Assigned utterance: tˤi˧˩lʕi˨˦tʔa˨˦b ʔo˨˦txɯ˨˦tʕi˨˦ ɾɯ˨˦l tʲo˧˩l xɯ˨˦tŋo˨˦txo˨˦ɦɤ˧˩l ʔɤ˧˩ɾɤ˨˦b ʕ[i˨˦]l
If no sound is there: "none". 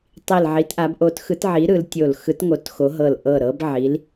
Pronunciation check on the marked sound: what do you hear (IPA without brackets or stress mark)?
i˨˦